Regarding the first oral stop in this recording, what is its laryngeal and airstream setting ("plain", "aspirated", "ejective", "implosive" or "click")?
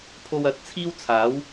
aspirated